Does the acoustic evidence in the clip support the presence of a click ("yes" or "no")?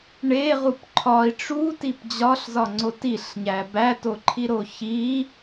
yes